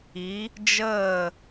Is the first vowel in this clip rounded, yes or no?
no